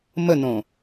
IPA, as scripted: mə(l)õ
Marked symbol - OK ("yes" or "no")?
no